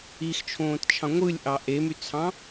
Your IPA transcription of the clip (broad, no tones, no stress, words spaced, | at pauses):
ixt͡ʃʰõːtt͡ʃʰɑ̃ ŋʷɯlʲʔɑ ʔemyt͡sʰɑ̃